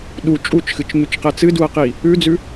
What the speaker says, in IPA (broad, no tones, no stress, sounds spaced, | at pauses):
ɗ u t͡ʃʼ u t͡ʃ x ɨ t͡ʃ ɲ ʉ t͡ʃ q ɛ t͡s ɨ d u ɐ̯ q i | ʉ d͡z ʉ